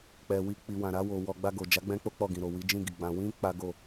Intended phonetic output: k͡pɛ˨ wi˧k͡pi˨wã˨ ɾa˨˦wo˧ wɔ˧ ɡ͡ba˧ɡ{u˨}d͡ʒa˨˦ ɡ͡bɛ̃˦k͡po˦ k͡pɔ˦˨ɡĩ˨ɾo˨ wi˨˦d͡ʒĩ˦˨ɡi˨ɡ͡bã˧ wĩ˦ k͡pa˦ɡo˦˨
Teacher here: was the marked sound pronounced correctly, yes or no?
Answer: no